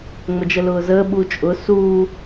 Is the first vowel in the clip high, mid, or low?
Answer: mid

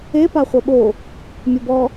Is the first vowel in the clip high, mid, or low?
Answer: mid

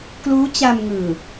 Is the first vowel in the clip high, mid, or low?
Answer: high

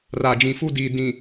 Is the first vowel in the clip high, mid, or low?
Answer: low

